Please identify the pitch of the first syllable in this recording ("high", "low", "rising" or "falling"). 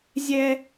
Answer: high